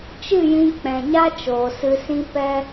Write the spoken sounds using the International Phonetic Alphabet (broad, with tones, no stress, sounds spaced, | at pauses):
t͡ʃ ɨ˦˨ j ĩ˧ k͡p ɛ̃˨ ɲ a˦ t͡ʃ oː˨ s ɨ˧ s ĩ˦ p ɛ˦